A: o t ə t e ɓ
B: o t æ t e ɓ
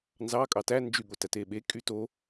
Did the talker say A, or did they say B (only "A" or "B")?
B